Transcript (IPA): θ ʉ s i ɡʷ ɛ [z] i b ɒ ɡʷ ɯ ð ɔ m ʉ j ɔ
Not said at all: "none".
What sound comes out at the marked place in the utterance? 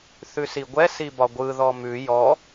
s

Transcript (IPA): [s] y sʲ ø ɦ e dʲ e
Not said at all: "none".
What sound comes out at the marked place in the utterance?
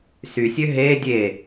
s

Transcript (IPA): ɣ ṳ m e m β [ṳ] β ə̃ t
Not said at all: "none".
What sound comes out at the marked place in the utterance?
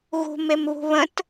ṳ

